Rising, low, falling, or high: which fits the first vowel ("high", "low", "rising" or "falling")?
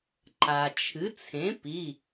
low